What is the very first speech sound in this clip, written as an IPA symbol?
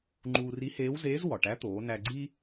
ŋ͡ǃ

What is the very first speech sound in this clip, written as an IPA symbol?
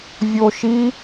vʲ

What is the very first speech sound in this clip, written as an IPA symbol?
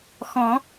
x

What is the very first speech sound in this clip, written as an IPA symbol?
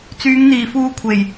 t͡s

